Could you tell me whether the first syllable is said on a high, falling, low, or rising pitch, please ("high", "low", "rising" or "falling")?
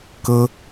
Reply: high